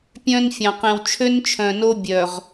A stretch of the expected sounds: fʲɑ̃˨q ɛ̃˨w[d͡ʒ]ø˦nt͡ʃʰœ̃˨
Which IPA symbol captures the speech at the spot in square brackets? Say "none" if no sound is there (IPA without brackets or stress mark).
t͡ʃʰ